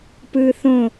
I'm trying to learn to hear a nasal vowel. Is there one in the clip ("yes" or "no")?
yes